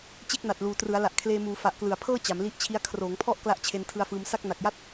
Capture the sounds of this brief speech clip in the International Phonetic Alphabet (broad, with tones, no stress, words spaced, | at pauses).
t͡ɕe˥˩k̚na˨˩t̚luː˨˩ trɯ˩˦a̯la˨˩ʔ kʰleː˧muː˩˦ fa˨˩ʔklɯ˨˩a̯pʰɤː˥˩ t͡ɕa˩˦mli˦˥ʔt͡ɕʰi˦˥a̯ kʰroː˩˦ŋpʰɔ˥˩ʔ kla˥˩ʔt͡ɕʰe˧n tʰɯ˧a̯fɯː˧m sa˥˩k̚na˨˩k̚ja˥˩t̚